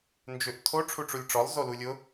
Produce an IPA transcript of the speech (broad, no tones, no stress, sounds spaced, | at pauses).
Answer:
n d͡ʒ ʏ ʔ tʰ o ʈ͡ʂʰ u ʈ͡ʂ u lʲ ʈ͡ʂ ɔ lˠ z o l u lʲ ʊ